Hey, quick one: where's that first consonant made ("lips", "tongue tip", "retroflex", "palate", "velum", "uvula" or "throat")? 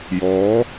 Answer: palate